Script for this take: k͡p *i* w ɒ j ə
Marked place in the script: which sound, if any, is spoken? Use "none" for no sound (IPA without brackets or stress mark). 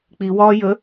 i